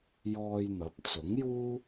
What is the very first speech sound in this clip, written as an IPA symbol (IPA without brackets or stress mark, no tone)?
j